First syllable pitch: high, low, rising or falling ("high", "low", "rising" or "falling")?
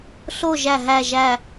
falling